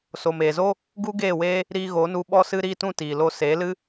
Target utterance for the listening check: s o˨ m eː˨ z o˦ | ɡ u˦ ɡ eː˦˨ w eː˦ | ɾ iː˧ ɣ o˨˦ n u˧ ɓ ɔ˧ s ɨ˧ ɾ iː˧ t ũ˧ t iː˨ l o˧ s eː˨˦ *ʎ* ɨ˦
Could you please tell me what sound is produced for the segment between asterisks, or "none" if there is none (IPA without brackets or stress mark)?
l